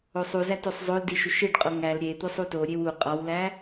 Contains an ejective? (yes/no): yes